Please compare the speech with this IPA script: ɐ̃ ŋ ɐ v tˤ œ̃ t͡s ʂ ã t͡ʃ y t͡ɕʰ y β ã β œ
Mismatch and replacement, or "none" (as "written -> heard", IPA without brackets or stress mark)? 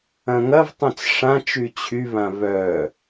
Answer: none